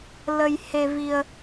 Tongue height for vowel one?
mid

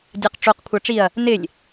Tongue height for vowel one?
low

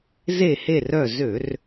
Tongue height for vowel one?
mid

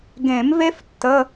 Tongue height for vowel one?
mid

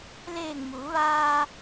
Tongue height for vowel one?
mid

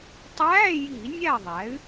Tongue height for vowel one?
low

